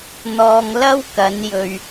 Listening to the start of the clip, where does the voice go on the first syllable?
low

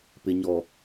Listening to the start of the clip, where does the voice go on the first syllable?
low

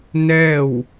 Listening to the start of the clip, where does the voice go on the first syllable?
falling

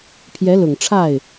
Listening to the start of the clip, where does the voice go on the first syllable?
rising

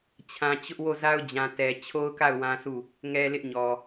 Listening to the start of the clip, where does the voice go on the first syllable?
low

